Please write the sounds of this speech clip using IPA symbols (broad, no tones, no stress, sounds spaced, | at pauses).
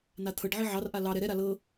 n a t̪ʰ ɤ ɖ ʕ i ʕ ɑ r ʔ a l ɑ ɾ ɛ ɾ ɛ ɾ a l ɤ